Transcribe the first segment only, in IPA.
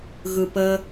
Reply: ɣ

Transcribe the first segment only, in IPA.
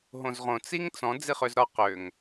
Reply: ɦ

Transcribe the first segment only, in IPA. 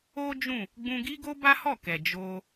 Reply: o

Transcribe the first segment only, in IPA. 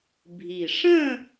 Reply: bʱ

